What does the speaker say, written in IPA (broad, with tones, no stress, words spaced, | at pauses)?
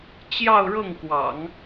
t͡ɕjɑ˥˧ʊ̯ɻɤ˥˩ŋkwɑ̰˨˩˦ŋ